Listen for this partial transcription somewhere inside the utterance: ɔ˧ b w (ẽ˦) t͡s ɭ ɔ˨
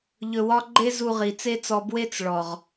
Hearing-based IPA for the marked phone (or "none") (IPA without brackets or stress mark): e˦